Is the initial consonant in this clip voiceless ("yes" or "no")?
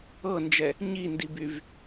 no